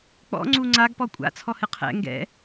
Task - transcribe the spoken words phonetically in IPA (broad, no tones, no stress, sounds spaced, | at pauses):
k͡p ɔ̰ ŋ͡ǀ u ŋ͡ǀ a ɡ p ɔ kʷʼ a̰ t͡sʰ ɔ h ɨ qʰ ɛ̰ ŋ ɡ ɛ̰